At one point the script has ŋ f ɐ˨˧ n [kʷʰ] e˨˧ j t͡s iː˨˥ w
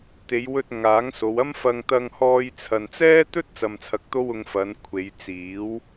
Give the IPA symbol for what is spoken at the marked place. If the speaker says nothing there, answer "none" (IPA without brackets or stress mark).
kʷʰ